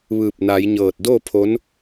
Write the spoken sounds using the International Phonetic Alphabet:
ʋ ɯː˧˩ p̚ n a˩˧ j ɲ ɤː˧˩ t̚ d oː˥˨ pʰ o˧˥ n

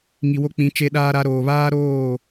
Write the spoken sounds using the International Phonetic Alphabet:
ŋ i˨ w o˦ k͡p ĩ˨˦ t͡ʃ e˦ ɗ aː˦ ɾ a˦ ɾ oː˨ β aː˦ ɾ oː˦˨

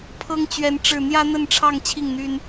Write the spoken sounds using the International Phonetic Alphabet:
pʰ ɤ˦ ŋ t͡ɕ ɥ ɛ˨˦ n ʈ͡ʂ ɻ̩˥˨ n̪ j ä˦ n̪ ə˥˨ n ʈ͡ʂʰ ɑ˥˨ ŋ t͡ɕʰ i˥˨ ŋ n̪ y˦ n

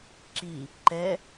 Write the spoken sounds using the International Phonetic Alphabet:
ǁ i | ǃ ɛ

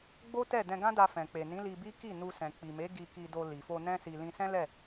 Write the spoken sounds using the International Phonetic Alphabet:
ɡ͡b o˦ t ɛ˦˨ d ɛ̃˧ ɡ ã˦ d a˧ f ɛ̃˨ k͡p e˨ n ĩ˨˦ l i˧ b i˦ k i˦˨ n u˧ s ɛ̃˨ k͡p i˨ m e˨˦ ɡ i˧ k i˧ d o˧ l i˨ f o˧ n ɛ̃˧ s i˨ l ĩ˧ s ɛ̃˦ l ɛ˦˨

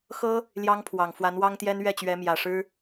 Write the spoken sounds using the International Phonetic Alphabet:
x ɤ˥ | l j ɑ˥ ŋ pʰ w ɑ˨˩ ŋ f w a˧˥ n w ɑ˥ ŋ t̪ j ɛ˥ n ɥ ɛ˥˩ t͡ɕ ɥ ɛ˧˥ m j ä˨˩ ʂ ɻ̩˥

